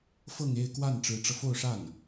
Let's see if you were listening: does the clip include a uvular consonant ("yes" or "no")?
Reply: no